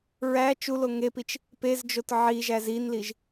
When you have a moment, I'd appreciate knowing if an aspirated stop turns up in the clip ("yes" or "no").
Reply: no